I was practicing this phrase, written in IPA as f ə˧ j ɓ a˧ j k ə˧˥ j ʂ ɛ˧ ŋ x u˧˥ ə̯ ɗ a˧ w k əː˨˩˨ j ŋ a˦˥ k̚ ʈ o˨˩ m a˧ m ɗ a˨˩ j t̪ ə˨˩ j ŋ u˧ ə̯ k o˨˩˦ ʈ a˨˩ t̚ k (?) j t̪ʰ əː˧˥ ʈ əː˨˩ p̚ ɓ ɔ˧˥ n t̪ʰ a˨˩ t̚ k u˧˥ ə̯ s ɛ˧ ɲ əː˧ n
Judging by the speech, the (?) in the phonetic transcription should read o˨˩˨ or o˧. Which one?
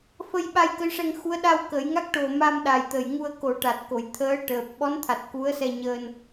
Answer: o˨˩˨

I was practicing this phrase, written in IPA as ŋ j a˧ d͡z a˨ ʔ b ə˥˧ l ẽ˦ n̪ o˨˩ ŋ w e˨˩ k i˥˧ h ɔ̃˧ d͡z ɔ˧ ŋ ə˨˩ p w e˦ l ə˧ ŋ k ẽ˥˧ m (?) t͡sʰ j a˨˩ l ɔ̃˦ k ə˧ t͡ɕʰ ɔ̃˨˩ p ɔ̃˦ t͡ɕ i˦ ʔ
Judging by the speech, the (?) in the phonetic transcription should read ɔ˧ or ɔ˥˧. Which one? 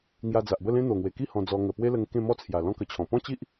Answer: ɔ˥˧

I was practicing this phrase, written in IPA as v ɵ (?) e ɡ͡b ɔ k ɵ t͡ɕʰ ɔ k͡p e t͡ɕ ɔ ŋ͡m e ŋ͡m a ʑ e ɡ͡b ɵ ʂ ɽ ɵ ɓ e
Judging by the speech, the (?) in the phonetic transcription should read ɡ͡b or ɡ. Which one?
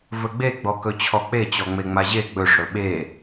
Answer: ɡ͡b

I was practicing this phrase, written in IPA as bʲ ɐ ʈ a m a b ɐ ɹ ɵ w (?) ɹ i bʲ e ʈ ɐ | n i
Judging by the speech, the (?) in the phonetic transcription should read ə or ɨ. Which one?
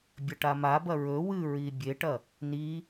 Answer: ɨ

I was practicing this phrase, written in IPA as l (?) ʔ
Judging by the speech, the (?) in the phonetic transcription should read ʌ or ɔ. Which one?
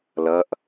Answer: ʌ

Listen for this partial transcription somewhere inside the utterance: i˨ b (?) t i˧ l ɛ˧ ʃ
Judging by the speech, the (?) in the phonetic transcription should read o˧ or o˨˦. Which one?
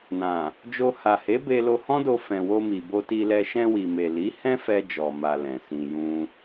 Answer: o˧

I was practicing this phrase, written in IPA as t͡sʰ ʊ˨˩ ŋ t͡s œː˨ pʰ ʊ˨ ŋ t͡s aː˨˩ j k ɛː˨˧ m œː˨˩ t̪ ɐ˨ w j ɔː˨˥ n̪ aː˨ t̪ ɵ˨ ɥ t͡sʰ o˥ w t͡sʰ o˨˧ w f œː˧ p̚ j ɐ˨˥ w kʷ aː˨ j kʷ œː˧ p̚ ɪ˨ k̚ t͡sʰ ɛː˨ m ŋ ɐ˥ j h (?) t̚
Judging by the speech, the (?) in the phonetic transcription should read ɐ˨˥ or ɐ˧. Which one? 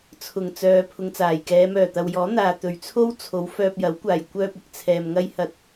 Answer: ɐ˧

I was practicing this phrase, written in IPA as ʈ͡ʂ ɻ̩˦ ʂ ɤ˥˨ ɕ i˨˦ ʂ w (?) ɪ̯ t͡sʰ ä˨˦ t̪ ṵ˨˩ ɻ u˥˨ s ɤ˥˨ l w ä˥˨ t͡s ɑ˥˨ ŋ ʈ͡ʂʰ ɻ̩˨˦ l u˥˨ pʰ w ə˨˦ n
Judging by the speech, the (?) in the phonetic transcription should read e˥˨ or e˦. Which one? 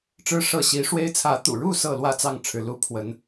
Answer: e˦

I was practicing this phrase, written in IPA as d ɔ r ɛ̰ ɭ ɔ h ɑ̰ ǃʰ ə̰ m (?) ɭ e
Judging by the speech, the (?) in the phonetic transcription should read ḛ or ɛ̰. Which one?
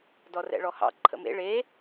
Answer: ḛ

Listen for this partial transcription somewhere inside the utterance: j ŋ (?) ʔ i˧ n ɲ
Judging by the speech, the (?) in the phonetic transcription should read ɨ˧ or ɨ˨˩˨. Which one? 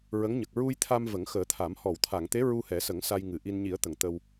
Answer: ɨ˨˩˨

